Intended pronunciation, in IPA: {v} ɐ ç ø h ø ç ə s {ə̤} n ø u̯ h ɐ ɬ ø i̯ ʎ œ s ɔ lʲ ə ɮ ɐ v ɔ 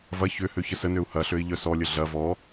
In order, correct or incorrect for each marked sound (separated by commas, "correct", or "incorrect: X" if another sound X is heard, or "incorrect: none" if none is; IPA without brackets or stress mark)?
correct, incorrect: ə